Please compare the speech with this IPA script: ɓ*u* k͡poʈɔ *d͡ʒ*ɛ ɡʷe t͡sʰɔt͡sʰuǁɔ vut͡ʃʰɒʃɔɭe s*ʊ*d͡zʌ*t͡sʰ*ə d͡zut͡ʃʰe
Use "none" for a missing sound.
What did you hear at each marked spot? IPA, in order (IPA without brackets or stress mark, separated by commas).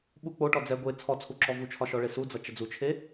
u, d͡z, u, t͡ʃ